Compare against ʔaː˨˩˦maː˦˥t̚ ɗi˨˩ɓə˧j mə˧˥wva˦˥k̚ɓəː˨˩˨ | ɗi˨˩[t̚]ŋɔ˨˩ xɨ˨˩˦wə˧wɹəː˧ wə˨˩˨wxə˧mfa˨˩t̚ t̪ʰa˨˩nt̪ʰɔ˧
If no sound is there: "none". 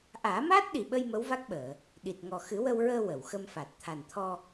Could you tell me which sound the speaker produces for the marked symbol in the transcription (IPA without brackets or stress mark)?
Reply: t̚